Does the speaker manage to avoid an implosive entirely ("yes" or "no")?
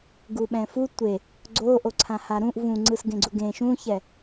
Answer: no